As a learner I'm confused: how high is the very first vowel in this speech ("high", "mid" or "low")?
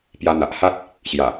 low